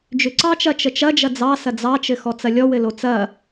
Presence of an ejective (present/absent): absent